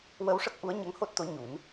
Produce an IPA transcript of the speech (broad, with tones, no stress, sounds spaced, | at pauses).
w ə˧ w ʂ ə˦˥ k̚ ʔ u˧˥ ə̯ ɲ ə˧˥ ŋ h o˦˥ t̚ t̪ o˧˥ ɲ u˨˩˦ n